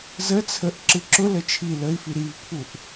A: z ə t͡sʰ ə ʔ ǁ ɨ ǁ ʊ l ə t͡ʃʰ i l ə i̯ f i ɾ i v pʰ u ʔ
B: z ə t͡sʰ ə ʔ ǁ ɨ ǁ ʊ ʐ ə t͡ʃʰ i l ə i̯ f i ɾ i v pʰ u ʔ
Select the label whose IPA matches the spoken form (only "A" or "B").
A